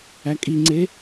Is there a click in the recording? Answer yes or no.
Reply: yes